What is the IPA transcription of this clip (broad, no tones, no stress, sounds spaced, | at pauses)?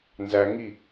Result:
n z æ ŋ i